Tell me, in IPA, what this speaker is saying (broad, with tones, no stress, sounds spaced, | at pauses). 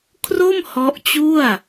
kʰ r o˥˩ m h ɔ˦˥ ʔ t͡ɕ u˥˩ a̯